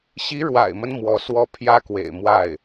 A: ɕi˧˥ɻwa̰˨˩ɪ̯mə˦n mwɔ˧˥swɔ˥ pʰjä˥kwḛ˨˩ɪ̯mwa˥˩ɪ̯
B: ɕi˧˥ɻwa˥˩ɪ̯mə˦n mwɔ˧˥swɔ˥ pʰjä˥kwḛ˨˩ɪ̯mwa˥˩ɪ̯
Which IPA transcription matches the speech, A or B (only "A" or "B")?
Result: A